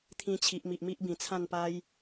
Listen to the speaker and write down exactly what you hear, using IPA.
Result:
t̪ʰĩ˧t͡ɕʰi˨ʔmi˨ʔ mi˦ʔbĩ˨˩t͡sʰã˥˧n pa˧j

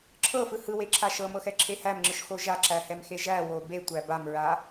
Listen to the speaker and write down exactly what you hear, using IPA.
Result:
ǁʰɤfɯ hɯweǁʰa ʃɤmɤxɛǁʰe hæmŋ͡ǁɯʃxo ʒaǁæhɛmxe ʒæwo betʷæ bamɹa

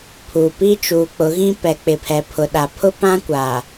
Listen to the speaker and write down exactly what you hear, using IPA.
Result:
pʰu˨pi˦ t͡ʃuː˨k͡pʊ˨˦ɣĩ˦ pɛ˨k͡pɪ˨pʰɛ˨ pʰʊ˨ɗa˨pʰʊ˦ pã˦kʷa˨

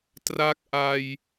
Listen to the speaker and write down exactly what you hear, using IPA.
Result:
tra˦˥k̚ʔa˧j

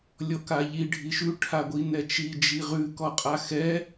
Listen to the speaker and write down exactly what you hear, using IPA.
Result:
lʲɔkaʎi ɖʱiʃʉ ʈʰaɡʷinɛt͡ʃi d͡ʒiʁʉ kɔqʼaxɛ

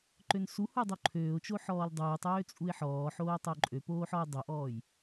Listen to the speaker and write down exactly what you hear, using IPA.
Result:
ǃønsuhu dˤuǃʰøːʊ̯t͡ʃo ħɔːldˤuːtˤøː t͡sʼuɪ̯ħɔːħoː tˤoǃʼøpoːħ ɔʊ̯dˤoʔɔːj

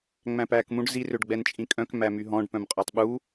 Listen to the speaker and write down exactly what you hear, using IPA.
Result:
ŋ͡mæ̃pæːkmũɖ zi røɖɡ͡bɛnt͡ʃʼĩkʼœ̃k mæmyɦɔ̃ɖ pœ̃mqʼœtˤɓu

